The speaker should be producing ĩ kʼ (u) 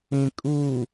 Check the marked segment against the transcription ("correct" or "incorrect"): correct